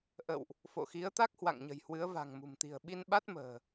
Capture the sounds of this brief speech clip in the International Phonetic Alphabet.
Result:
ʔə̰˧˨wʔ | fo̰˧˨xi˨˦ə̯t̪a˦˥k̚ hwa̰˧˨ŋɲə̤˨˩jhwɨ˨˦ə̯ va̤˨˩ŋmṳ˨˩m t̪i̤˨˩ə̯ɓi˧nɓa˦˥t̚ mə̤ː˨˩

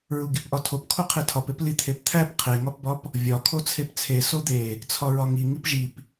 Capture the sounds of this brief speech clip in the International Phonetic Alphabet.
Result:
ɹuɡipʔɒtʰop kʰoqʰetʰɒpep lit̪ʰept̪ʰæp qʰeŋɒpbɒp | vʲɒ kʰot͡sʰept͡sʰe sod̪e | t͡sʰɒɹɒŋi ŋipʒip

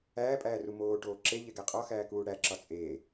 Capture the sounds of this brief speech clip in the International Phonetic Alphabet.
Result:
æːpʼæːru moːʈoː ǁeʎeɡæ qʼɒxæːkuː ɽæǁɒ t͡sʼeː

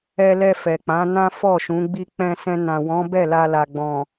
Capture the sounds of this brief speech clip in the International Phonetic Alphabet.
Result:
ɛ˧lɛ˧ fɛ˨k͡pã˨˦ nã˦fɔ˦˨ʃũ˨˦ ɡ͡bi˧k͡pɛ̃˧ sɛ̃˧nã˨ wɔ̃˨˦ bɛ˦˨la˧la˨ ɡ͡bɔ̃˨

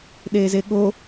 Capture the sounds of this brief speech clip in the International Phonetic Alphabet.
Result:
ɗeːzeɠo

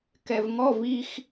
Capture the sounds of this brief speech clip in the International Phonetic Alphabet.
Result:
kɛvŋɔv ix

